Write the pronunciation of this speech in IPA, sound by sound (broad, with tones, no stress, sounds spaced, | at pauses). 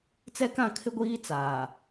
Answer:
t͡s ɛ˦ k ã˦˨ kʰ ɪ˦ ɡʷ iː˦ t͡s aː˨